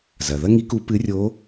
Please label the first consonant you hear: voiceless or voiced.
voiced